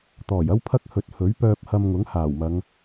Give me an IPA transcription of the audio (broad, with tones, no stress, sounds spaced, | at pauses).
t̪ ɔː˨˩ j ɐ˥ w pʰ ɐ˥ k̚ h ɵ˨˥ t̚ h ɵ˨˥ ɥ p œː˧ p̚ h ɐ˧ m ŋ ʊ˨˥ ŋ h aː˨˩ w m ɐ˨˧ ŋ